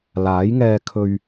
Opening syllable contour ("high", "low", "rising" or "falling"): rising